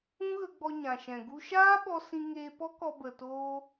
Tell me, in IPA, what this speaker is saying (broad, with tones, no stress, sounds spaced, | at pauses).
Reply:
ũ˦ ɣ ə˧ ɡ͡b ɔ˧ ɲ ã˨ ʃ ɛ̃˨ ɡ u˦ ʃ aː˦ ɓ ɔ˧ s ĩ˧ ŋ eː˧ p ɔ˦ k ɔ˧ b ə˨ t oː˦